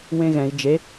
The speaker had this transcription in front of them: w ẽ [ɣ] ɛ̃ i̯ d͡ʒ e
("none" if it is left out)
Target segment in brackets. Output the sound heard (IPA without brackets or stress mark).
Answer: ɣ